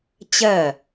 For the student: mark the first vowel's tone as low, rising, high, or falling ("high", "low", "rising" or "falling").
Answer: falling